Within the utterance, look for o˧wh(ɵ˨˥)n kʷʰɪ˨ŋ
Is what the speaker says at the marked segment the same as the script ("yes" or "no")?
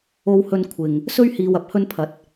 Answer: no